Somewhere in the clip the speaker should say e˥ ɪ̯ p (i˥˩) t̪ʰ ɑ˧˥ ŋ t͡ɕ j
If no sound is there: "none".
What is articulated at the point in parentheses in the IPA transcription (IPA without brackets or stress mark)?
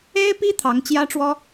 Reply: i˥